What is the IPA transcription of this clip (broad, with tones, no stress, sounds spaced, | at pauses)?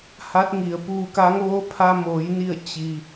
h a˧˥ t̚ ŋ i˩ ə̯ p uː˧˩ k a˧˥ ŋ ʋ o˧˥ pʰ a˧ m oː˩˧ j n i˧˩ ə̯ t͡ɕ i˩